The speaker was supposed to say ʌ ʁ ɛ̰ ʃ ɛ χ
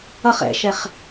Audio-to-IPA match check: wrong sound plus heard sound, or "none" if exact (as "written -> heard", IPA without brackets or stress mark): ʁ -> χ